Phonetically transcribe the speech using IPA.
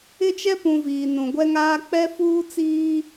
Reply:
ɪ˦t͡ʃɛ˦pũ˨ viː˨nũ˨ ɡʷɛ˦ŋaː˦ k͡pɛ˦fuː˦t͡siː˦

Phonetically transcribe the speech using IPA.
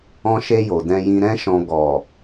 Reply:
ɔ̃˧ʃe˧ jo˨dɛ̃˧jĩ˧ ɾɛ̃˧ʃɔ̃˨ ɡɔ˨

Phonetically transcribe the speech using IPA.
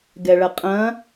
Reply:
ɡɛɭɐqʼɐ̃

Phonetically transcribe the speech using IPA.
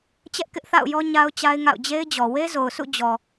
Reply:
t͡ɕɛ˦ʔkɪ˦ʔθa̰˦˨ʊ̯jɔ˦ ɲa˦ʊ̯t͡ɕa˦ɪ̯ŋa̰˦˨ʊ̯ d͡ʑe˦ɪ̯d͡ʑɔ˨ we˦zo˨ʊ̯ sʰṵ˦˨d͡ʑɔ˨

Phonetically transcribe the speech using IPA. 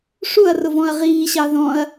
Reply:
ʂuɐ̯rʊvɔ̃ɐ̯ ʁiːɕɑ ðɔ̃ɐ̯

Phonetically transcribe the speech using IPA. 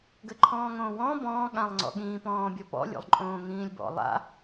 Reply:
ɡɘǃʰɔ̃ːŋõːwɔ̃ː bɔ̃ː ɠãlˠŋ͡ǀɔ̰ɠĩː pɔ̃ːbʲɔpɔ̰ lʲo̰lˠǃʼõːŋĩːlʲbɔ̰ lˠa̰

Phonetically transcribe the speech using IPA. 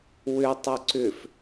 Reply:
wʏ tˤʏǀʏf

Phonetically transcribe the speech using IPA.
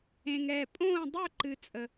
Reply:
ẽ˧ŋɛ˩˧˩ pʼõː˥˧ dˤø˥˧ ǃɨ˧t͡sʼə˧

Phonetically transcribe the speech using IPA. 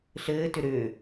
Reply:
ɬɘːtʏ ɾʏː

